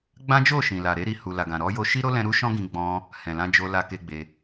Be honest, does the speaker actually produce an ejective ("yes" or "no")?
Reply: no